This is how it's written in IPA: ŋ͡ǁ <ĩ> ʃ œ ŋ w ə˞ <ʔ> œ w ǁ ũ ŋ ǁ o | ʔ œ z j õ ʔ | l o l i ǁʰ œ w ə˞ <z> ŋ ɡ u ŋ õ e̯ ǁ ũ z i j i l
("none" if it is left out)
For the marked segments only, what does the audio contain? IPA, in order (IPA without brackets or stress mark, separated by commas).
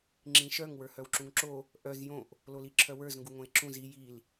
ĩ, h, z